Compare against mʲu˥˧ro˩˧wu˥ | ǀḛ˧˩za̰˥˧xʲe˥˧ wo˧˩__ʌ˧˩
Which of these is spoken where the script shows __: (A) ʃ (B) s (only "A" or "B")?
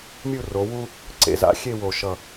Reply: A